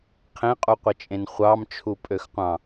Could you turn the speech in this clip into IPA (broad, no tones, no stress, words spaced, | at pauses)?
qʰẽqʼuqʷit͡ʃʼẽn χʷɑmt͡ʃʰupʼøxqʷɑ̃